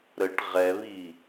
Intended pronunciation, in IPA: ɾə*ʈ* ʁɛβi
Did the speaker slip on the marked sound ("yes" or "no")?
no